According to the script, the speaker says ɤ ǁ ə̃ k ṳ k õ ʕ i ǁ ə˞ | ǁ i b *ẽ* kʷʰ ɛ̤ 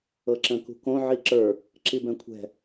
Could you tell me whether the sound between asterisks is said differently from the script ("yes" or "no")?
yes